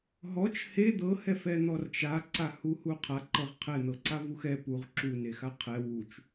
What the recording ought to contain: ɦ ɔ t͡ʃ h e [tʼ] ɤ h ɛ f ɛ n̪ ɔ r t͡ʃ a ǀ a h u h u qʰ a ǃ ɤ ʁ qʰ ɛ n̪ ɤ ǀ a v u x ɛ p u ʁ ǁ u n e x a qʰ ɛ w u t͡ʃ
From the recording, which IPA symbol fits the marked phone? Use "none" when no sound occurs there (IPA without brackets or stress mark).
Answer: d̪